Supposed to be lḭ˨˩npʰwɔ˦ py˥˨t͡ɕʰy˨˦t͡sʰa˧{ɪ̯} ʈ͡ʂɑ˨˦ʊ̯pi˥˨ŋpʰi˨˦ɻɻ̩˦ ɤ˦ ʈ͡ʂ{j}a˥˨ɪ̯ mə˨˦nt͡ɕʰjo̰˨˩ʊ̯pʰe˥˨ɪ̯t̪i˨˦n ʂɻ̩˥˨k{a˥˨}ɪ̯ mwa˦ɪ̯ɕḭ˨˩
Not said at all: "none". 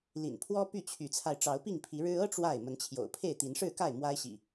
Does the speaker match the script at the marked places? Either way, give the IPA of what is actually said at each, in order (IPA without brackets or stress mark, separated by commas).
ɪ̯, w, a˥˨